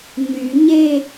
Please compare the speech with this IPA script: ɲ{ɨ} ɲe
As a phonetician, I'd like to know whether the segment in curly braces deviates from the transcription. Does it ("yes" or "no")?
yes